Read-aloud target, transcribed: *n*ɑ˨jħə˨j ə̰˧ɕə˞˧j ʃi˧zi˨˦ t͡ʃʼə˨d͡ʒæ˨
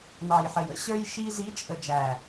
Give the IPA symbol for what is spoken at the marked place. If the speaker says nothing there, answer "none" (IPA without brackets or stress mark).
n